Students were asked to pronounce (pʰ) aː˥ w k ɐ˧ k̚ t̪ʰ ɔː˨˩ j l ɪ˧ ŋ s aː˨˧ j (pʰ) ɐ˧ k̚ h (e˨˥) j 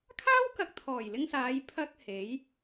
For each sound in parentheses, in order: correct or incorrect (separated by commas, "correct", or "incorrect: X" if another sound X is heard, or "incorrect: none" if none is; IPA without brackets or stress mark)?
incorrect: kʰ, correct, correct